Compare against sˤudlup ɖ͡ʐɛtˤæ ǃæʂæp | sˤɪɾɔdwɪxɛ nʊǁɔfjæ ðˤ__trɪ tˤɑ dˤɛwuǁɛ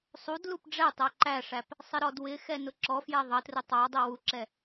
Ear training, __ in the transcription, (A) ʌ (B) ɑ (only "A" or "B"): A